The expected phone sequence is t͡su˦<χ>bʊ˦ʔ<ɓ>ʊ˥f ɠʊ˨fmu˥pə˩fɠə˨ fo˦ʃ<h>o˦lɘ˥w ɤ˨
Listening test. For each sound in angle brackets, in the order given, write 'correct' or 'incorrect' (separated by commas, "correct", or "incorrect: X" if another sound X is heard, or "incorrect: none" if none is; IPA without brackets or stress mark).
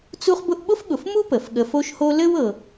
correct, correct, correct